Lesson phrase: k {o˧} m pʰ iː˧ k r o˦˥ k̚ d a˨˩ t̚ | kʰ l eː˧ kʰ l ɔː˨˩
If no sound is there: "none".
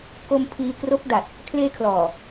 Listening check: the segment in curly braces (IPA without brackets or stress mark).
o˧